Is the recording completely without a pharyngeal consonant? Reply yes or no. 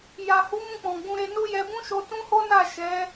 yes